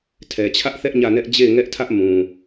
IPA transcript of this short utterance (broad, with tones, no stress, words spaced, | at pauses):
tʰɛ˨t͡ɕʰä˦ʔθɛ˦ʔ ɲä˦˨nɛ˦ʔ d͡ʑe˦˨ɪ̯ŋɛ˦ʔtʰä˦ʔ mũ˨